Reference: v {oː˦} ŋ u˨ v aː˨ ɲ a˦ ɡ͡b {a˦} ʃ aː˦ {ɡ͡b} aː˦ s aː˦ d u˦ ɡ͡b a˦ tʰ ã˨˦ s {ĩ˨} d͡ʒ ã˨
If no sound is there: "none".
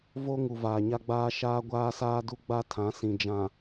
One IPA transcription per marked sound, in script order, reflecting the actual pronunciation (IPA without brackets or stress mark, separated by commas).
o˦, aː˦, ɡʷ, ĩ˨